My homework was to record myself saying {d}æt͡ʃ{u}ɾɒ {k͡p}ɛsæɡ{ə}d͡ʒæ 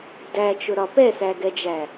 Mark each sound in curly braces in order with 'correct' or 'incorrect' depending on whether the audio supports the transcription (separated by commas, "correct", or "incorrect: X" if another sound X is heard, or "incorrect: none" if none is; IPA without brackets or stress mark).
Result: correct, incorrect: ʊ, incorrect: p, incorrect: ɛ